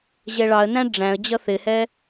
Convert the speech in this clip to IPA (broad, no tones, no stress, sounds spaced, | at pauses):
ʑ ɛ ɭ ɑ ə̯ n æ̃ ɖ͡ʐ æ̃ ə̯ d͡ʑ ʌ θ ɪ h ɛ